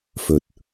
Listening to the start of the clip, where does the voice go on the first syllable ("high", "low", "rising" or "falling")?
low